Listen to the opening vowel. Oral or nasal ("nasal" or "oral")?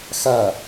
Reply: oral